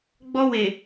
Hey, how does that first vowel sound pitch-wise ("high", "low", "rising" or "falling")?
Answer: high